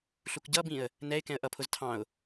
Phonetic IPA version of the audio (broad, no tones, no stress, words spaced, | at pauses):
ɬukɟʌbĩə̯ | nɛɪ̯ kɛ̃ə̯ʔʌpʰʊz tʰɑ̃ʊ̯